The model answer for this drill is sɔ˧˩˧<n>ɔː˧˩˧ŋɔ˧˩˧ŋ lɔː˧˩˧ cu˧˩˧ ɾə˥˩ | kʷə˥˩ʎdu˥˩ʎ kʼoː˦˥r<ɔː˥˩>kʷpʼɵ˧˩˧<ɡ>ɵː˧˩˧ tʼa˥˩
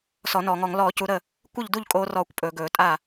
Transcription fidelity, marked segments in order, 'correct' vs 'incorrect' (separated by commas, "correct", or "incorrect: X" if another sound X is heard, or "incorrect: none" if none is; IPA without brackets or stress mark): correct, correct, correct